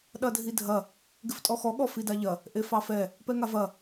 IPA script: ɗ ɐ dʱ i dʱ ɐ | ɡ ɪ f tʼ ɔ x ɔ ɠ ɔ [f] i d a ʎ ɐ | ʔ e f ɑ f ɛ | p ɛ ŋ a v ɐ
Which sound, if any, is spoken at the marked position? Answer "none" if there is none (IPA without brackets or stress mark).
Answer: f